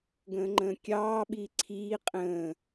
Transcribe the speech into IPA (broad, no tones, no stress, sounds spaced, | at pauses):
ɡ ə̃ː ŋ͡ǃ ə̃ː kʲ ɑː ɓ i ǀʰ iː qʼ ə̃ː